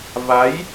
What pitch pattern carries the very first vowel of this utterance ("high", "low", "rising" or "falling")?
rising